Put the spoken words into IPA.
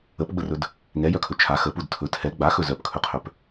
əpɡ͡bərɵd | ŋɛjœkʰɵ t͡ʃʰa xəpud tʰɵ tʰɛ ɡ͡baxɵ zœpkʰɵqʰœp

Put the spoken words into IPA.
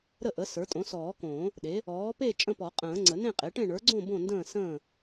ɾə˥˨ʔə˩˥ sə˞˩˥tʼõ˩˥sɔː˨˩˦kõː˨˩˦ | ɗe˩˥ | ɔː˩˥pe˥˨ t͡ʃʼə̃˥˨pɔ˨˩˦qʼə̃ː˨˩˦ ŋ͡ǀə˨˩˦nẽ˥˨qʼe˩˥ʈẽ˥˨ ɳə˞˩˥ɡ͡ǀõ˥˨ bõ˥˨ndə̃ː˥˨ sə̃ː˥˨

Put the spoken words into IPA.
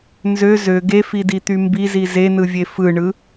nzø zø ɡefidit̪y mbizi zenɯvʲe fɯɳɯ

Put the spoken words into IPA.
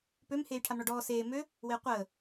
pøm heːjʈʰamɳɔɖɔː seː mø | weːqʷəː

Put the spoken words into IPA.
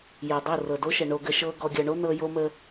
jɤ˨dˤo˦˨ rɤ˨ do˦ʃə˨ ɳo˨ɡə˨ ʃɤ˦ ɡɔ˨ɡʲɤ˨ɳo˦ nɤ˦ jo˦mə˦

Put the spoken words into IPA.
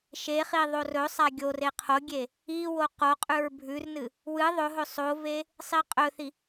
ʃeχi ðˤorɵsˤa ɡʲore qʰoɡʲe | iwo qoqʼʉɹ bʱʉrnɨ | wɨ ðˤɵɦɵ sˤove | sˤiqʼɵθi

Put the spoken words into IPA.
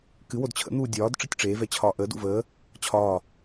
kɨ wodt͡ɕʰə̰n̪uː dʲɒːd ʈ͡ʂɨtʲʈ͡ʂeːvɛ t͡ɕʰɒːʔəːdṵ vəː | t͡ɕʰɒː

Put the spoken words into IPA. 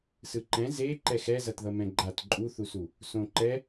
sɯǃɛ̃ ze ǃɛxɛzʌt ðʌmɛ̃ɡ͡ǃat ǃʼuθusu | sõǃɛ

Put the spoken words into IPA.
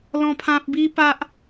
lɔ̃˦pʰã˦p̚ bi˦pa˦ʔ

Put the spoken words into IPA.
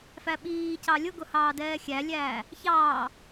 fæɓiːcɑ lʲʊɡʊ hɑːdɛːxʲælʲæː | çɑː

